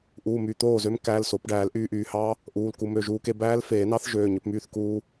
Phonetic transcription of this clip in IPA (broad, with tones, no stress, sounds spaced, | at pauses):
ʔ uː˩˧˩ m y˩˧˩ t̪ oː˥˩ z ø˦˥ m k æː˩˧˩ l s o˨˩˦ p ɖ æː˨˩˦ l ʔ yː˧ ʔ yː˩ h ɑ˦˥ | ʔ uː˩˧˩ l k u˧ m ø˩˧˩ ʒ uː˧ k e˧ b æː˦˥ l f eː˨˩˦ n ɑ˦˥ θ ʒ øː˩˧˩ ɲ ø˧ p m yː˥˩ θ k uː˧